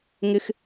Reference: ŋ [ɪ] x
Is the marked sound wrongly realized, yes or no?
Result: no